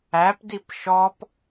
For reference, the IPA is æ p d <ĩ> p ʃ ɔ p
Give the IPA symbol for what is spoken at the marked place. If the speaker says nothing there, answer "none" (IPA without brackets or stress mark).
i